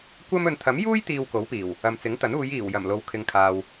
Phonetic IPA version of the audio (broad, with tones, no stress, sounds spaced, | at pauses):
kʷ ɐ˥ m ɵ˨ n t̪ʰ ɐ˨˥ m j uː˥ j t̪ iː˧ w k o˨˥ w p iː˨˩ w | ɐ˨ m t͡s ɪ˨˥ ŋ t̪ ɐ˨˥ n uː˨˧ j iː˨˩ w j ɐ˨˩ m l o˨ w kʰ ɪ˨ ŋ kʰ aː˨ w